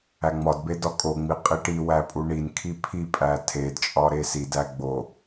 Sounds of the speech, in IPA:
æŋ͡mɒdbe dɒkʼoŋ͡mi qʼiʈiwæ pʼuɳinkʰi pʰipʼæ tʰedt͡ʃʼɒ ɾesidæ ɡ͡bo

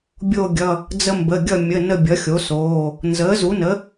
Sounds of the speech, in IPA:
bʲo˦˨ɡʲʌ˩˧˩ | d͡zə˦mbə˩˧˩ ɡʲʌ˦˨ mʲə˩˧˩ nə˦˨bʲʌ˩˥xʲo˩˥soː˩˧˩ | nzəː˩˥zu˩˥nə˩˥

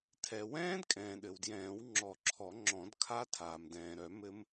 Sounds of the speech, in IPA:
tʰɛ˩ wɛ̃ː˦˥dkʼɛ̃ː˩ ɗɘ˩wdjɛ̃ː˨˩˦w ŋ͡ǁɔ˨˩˦ǁʰɔ˨˩˦ ŋ͡ǁɔ̃˨˩˦dkʰa˦˥ tʰaː˩mdɛ̃ː˩ɾœ˨˩˦ mɘ˦˥m

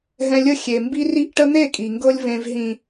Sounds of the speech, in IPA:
ɦɛ̃˧lʲə˦˨ xʲe˨mbi˦ri˦ʔ ʈə˦n̪e˦˨kʼi˨ŋɡɤ˧lʲ vẽ˨vɦĩ˨

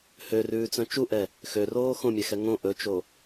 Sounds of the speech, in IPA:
hørʉːt͡sœ̃ t͡ʃuʔɛ | xøroː xõmʲɛxɛ ŋõ ʔɵt͡ʃo

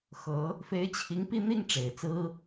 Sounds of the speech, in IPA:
xɤ˧˥ | fe˧˥ɪ̯t͡ɕʰi˧˥ŋ pi˥˧n̪i˥˩ŋ ʈ͡ʂe˨˩ɪ̯t͡sɹ̩˥

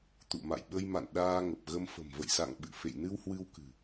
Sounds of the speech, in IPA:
t̪ṵ˧˨ma̰˧˨jɓə˧jma̰˧˨n ɗaː˧ ŋə˨˩p̚ɣə˧m fə̤˨˩mvə̰˧˨jsa̰˧˨ŋ ɓɨ̰˧˨ fḛ˧˨jnɨ˧w hwɨ˧wkɨ̤˨˩

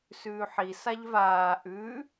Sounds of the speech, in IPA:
sʉːħisaʎ vaː ʔʉ

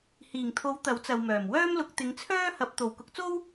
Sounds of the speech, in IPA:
hiː˨˩ŋt̪ʰo˨˥w t̪ɐ˨˥wt͡sɐ˨wmœː˨˩m wœː˥mlʊ˨˥k̚t̪ɪ˨˧ŋ t͡sʰœː˥hɐ˨˥p̚ t̪o˨w kʊ˨˥k̚t͡so˥w

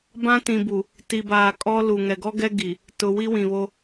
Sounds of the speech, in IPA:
bã˦tĩ˨bu˨ | ti˨baː˨kʼɔ˦ lu˨ ŋɛ˨ɡɔ˦ɡɛ˦ɡi˨ | tʊ˨ wi˦wĩ˨βo˦

